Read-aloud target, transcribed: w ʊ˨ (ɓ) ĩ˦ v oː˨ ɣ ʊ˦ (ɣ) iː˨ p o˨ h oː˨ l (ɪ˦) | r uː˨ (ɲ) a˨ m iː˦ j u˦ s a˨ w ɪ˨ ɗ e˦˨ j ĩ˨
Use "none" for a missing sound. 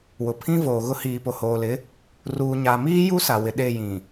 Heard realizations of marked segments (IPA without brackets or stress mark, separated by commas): pʰ, h, ɪ˨˦, ɲ